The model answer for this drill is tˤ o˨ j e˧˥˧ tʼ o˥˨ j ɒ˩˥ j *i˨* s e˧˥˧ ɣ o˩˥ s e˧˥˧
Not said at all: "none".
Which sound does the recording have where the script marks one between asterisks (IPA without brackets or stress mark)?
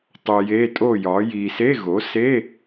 i˨